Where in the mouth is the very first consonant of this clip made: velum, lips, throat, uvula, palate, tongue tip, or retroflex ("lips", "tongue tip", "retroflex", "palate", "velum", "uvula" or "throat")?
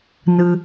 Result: tongue tip